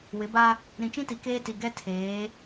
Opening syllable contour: rising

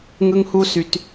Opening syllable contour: high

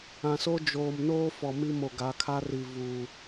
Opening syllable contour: low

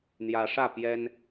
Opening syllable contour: rising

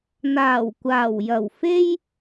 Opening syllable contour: low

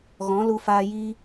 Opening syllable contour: rising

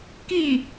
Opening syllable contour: falling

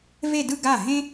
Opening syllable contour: falling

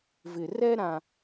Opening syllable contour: low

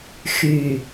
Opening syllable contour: low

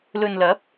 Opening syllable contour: low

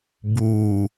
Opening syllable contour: low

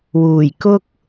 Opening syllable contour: low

